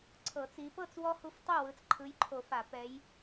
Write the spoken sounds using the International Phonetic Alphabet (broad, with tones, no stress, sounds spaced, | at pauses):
ǀʰ ɤ˨˩˦ t͡s i˨˦ p ɤ˥˨ t͡s w ɔ˦ h u˦ f tˤ u˥˨ w ɯ˨˦ t͡s ǃʰ ɯ˨˦ j ǃʰ o˨˩˦ f a˨˩˦ p ɛ˨˦ j